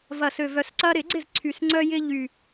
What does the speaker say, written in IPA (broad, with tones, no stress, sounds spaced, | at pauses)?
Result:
v ɐ˨˩ s ø˨˩ v œ˨˩˦ s ǀ ɐ˦ ɾ ɪ˨˩˦ ɡ͡ǀ ɪ˥˩ z ǀʰ y˨˩ s ŋ͡ǀ œ˦ j ɪ˦ ʎ y˨˩